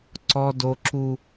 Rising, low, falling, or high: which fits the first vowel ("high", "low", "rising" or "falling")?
high